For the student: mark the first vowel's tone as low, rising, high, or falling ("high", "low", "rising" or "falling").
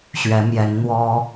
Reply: rising